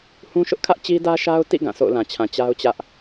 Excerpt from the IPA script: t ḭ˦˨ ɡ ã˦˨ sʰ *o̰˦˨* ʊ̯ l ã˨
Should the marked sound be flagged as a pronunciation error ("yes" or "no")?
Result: no